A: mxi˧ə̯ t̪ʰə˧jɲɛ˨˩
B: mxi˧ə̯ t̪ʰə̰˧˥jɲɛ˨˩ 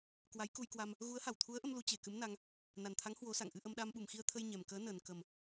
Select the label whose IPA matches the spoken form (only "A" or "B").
A